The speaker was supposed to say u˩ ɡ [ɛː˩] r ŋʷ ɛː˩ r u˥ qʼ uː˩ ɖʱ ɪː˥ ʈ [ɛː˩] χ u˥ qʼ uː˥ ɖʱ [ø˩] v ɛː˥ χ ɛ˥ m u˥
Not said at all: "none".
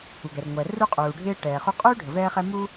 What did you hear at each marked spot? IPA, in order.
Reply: ɛ˩, ɛː˩, ə˩

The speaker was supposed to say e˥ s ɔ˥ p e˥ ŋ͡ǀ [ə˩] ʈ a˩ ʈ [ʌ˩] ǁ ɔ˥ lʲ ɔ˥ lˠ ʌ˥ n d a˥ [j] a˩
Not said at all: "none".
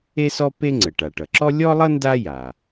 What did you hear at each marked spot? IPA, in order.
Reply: ə˩, ʌ˩, j

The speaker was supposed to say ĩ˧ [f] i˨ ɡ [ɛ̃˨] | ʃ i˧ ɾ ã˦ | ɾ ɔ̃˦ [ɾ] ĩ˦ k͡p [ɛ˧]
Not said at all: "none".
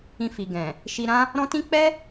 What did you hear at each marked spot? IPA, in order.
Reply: f, ɛ̃˨, t, ɛ˦

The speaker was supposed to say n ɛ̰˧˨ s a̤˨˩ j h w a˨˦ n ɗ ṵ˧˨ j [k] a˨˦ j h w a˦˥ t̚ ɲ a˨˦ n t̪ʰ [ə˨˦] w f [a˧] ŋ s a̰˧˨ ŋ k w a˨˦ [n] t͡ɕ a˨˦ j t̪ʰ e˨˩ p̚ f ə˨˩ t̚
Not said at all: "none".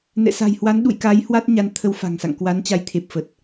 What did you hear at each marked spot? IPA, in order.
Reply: k, ə˨˦, a̤˨˩, n

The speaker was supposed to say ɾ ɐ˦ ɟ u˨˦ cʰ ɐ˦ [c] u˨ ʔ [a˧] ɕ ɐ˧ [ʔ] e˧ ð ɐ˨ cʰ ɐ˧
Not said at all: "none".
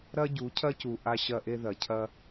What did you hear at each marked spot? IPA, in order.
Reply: c, a˧, ʔ

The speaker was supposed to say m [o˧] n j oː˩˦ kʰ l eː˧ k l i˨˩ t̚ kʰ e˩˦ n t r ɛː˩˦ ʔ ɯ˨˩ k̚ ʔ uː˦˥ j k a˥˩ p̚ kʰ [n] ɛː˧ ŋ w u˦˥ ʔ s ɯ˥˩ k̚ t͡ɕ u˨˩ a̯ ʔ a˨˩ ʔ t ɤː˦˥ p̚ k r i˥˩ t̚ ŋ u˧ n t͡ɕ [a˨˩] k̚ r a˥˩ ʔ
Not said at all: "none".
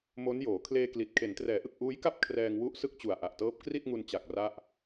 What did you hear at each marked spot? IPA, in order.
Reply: o˦˥, r, a˨˩

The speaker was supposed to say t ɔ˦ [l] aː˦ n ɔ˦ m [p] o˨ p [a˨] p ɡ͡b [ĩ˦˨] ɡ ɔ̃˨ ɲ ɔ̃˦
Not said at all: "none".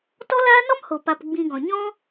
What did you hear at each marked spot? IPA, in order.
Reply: l, h, a˨, ĩ˧

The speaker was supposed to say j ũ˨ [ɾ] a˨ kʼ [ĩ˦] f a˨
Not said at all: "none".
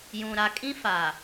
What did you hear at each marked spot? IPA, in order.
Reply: ɾ, ĩ˦

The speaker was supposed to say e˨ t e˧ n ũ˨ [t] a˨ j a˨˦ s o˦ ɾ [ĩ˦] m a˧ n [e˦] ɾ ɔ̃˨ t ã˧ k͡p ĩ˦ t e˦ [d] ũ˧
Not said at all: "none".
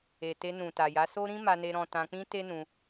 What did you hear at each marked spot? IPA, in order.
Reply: t, ĩ˦, e˧, n

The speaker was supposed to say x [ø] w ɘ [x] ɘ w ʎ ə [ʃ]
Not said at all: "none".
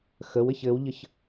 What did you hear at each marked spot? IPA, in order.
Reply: ə, ç, ç

